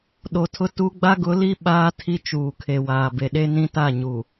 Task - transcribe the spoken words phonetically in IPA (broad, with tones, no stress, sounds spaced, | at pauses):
ɗ o˨ tʰ ʊ˦ t u˦ ɡ͡b a˦ ɡ ʊ˨˦ l i˦ ɓ aː˦ tʰ i˦ t͡ʃ uː˨ kʰ e˨ w aː˨ b e˨ ɗ e˦ n ĩ˦ t a˦˨ ɲ u˨